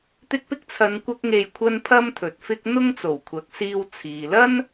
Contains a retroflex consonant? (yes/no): no